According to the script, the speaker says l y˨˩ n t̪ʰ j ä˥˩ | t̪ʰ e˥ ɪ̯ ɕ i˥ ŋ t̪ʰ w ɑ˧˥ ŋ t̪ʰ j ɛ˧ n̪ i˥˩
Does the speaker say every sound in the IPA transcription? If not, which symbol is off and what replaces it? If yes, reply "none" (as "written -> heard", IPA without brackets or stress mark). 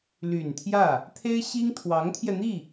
none